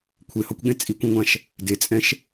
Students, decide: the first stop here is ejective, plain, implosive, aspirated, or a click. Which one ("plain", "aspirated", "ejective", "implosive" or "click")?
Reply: aspirated